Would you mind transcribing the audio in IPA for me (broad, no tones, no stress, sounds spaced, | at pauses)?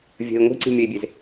vʲ ə̤ i̯ ŋʷ i̤ ǀ i̤ mʲ ə i̯ bʲ e z